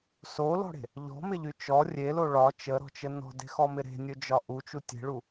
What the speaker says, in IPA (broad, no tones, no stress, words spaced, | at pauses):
solɔ̤ɽe̤ | ʎɔ̤mɪʎy t͡ʃɔ rʲelo ɭɒ t͡ʃəɾɔ̤t͡ʃə nɔ̤de̤xɔmɪ ɾe̤nʲɵd͡ʒɒ ʔut͡ʃu tʲe̤ɭu